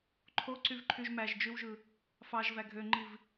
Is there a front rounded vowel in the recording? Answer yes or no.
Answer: yes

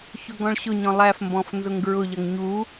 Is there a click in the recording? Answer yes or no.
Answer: no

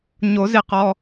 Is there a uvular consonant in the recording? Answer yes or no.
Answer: yes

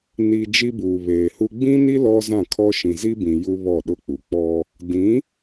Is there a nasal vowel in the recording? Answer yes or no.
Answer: yes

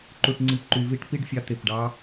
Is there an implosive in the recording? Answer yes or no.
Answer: no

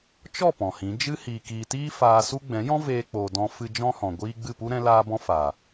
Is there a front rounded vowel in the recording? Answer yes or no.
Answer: no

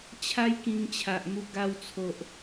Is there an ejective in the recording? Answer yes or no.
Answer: no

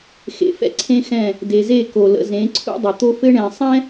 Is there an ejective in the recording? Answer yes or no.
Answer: no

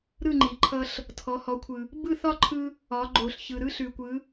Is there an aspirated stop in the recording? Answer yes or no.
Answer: yes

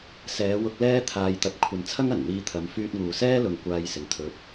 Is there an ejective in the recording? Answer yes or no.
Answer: no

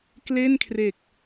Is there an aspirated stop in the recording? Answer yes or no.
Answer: yes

